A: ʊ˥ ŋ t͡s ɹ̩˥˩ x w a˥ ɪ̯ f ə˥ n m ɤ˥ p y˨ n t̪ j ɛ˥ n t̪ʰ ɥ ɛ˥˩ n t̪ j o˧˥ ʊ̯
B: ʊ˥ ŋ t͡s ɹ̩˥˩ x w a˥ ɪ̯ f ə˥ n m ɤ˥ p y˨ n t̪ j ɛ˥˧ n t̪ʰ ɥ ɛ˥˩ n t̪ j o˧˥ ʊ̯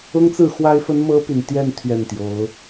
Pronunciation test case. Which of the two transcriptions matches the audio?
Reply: B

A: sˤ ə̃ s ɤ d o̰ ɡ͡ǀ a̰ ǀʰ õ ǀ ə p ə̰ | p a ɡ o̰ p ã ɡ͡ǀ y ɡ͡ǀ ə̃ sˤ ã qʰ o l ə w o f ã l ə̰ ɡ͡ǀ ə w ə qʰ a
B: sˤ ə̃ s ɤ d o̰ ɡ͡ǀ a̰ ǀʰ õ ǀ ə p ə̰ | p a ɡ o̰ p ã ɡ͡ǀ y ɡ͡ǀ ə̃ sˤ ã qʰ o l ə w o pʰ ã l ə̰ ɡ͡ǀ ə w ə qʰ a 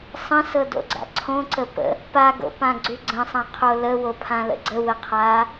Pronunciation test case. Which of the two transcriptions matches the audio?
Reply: B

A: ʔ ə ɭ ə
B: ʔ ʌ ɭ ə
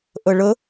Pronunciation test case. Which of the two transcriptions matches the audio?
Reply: A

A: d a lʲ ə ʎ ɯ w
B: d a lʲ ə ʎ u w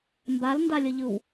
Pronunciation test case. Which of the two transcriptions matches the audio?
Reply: A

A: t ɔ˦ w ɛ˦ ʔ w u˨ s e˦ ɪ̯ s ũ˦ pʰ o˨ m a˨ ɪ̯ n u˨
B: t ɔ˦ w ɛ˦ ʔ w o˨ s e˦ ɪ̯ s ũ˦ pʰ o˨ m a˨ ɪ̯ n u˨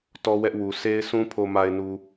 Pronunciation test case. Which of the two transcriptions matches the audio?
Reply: A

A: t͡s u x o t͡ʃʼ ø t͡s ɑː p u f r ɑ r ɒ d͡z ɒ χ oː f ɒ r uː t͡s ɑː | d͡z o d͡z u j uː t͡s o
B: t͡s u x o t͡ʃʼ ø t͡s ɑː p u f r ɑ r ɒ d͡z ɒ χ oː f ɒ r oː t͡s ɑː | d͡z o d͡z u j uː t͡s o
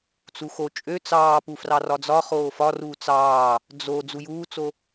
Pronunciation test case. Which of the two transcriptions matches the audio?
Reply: A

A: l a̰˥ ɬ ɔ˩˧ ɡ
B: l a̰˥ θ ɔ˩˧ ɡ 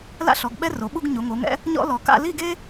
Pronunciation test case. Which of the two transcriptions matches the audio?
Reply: A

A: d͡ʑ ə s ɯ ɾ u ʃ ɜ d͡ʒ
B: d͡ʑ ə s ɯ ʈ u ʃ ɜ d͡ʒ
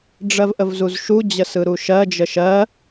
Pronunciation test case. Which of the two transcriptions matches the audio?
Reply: A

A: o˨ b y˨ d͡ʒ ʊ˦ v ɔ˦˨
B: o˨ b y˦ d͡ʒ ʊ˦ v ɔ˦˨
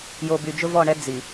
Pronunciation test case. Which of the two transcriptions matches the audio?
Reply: A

